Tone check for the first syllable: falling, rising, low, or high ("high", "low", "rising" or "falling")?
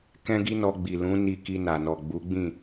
high